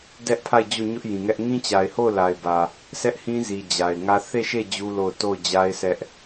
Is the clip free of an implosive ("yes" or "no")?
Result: yes